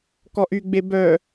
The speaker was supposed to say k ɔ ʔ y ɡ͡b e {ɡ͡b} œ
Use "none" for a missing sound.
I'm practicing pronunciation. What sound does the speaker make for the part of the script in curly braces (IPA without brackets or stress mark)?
b